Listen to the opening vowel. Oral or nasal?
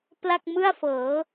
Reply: oral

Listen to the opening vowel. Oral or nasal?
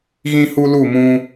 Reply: nasal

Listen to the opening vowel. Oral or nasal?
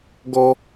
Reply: oral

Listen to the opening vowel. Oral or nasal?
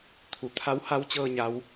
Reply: oral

